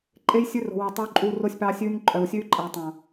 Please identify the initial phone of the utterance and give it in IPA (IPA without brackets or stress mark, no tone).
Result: ǃʼ